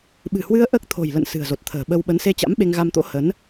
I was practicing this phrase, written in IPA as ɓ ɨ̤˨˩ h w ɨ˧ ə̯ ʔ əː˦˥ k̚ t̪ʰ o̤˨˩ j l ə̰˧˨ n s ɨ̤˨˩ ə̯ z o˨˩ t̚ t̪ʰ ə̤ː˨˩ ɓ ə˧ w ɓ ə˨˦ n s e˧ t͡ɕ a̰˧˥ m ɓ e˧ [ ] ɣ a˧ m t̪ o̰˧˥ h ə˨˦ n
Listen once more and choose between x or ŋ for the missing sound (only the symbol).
ŋ